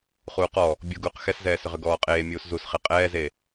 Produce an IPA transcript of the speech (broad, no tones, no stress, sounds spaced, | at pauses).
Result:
χ uː q ɔ | bʲ u ɡ uː q x ɛ s z ɛː s ʏ ʁ ʏ ɡ ɔː qʼ eː mʲ uː s z u s χ e qʼ ɛː z e